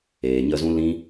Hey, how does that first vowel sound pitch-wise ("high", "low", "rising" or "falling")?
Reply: low